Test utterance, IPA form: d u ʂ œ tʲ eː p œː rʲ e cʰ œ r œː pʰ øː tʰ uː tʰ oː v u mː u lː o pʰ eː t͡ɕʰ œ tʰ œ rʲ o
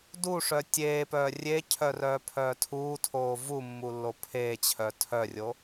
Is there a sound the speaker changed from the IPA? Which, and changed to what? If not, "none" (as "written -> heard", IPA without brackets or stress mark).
øː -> œː